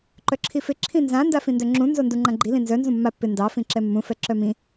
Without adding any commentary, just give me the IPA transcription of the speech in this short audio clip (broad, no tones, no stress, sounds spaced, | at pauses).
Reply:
ǃ œ ǁʰ i f ɪ ǁʰ ĩ n z ã n d a f ĩ n d œ ŋ͡ǁ ũ n z o n d u ŋ͡ǃ ã ɡ͡ǃ i l ĩ n z œ n z ũ mː a pː ɪ n d ɑ f ĩ ǁ ɛ mː ũ f ɛ ǁ œ m ĩ